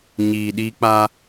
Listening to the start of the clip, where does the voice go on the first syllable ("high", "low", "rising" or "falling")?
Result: low